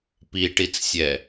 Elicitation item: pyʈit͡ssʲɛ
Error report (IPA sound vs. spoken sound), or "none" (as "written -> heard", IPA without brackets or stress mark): y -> i